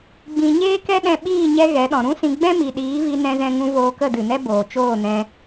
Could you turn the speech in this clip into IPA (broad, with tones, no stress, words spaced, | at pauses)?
ɡ͡bĩ˨ ɲeː˦kɛ˦ɗɛ̃˧ɓiː˦˨ ɲɛ˦ɣɛ˨˦ɗɔ̃˨ ɾũ˦sĩ˧ ɡ͡bɛ̃˦mi˨ɗiː˨˦vi˧ nɛ̃˧zɛ̃˧ŋũ˧ voː˧kə˦˨dɨ˨nɛ˦ boː˨t͡ʃoː˦˨nɛ̃˧